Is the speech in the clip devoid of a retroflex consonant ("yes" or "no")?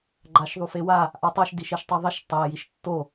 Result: yes